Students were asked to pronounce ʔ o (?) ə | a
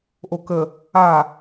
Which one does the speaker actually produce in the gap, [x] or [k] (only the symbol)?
k